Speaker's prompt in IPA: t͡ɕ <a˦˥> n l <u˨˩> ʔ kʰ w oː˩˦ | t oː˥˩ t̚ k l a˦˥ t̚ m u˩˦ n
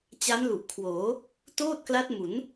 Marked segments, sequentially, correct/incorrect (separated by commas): correct, correct